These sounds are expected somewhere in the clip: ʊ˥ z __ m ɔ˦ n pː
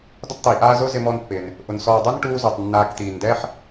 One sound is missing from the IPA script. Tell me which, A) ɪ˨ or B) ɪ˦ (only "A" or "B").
B